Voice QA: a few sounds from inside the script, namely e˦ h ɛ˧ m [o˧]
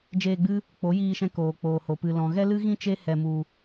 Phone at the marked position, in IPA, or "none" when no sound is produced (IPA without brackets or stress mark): u˧